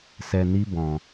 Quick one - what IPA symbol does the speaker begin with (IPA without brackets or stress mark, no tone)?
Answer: s